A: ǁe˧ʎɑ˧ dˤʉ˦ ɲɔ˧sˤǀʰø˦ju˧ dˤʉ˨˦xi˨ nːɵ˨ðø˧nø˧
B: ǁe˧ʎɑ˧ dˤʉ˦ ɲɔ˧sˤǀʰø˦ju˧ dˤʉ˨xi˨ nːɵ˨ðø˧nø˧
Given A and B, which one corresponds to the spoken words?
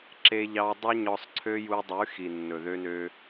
A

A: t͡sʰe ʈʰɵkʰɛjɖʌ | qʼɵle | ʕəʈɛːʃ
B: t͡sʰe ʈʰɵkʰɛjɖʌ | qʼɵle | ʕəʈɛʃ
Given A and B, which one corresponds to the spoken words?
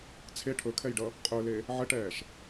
A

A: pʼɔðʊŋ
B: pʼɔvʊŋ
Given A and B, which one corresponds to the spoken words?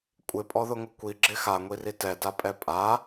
A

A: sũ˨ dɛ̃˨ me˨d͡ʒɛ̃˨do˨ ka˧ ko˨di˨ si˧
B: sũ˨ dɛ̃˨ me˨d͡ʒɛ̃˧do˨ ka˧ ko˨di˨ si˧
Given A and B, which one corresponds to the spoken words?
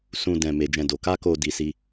A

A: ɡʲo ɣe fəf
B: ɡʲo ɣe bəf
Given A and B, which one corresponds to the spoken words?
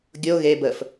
B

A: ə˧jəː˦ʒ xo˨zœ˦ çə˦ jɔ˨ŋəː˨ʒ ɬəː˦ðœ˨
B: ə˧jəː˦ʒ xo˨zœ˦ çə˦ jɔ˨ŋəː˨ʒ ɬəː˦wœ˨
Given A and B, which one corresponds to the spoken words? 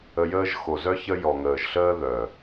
A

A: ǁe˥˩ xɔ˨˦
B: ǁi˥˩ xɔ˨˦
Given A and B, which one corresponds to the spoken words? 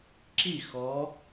B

